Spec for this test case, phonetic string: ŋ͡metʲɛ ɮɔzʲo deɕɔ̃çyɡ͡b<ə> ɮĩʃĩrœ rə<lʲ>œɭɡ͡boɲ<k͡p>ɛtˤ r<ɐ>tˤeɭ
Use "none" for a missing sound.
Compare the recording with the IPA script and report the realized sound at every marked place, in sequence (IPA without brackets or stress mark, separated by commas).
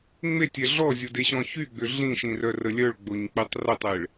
ʏ, lʲ, k͡p, ɐ